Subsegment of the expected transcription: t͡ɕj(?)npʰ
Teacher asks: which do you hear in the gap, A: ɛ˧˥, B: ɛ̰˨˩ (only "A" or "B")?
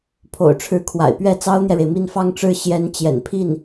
B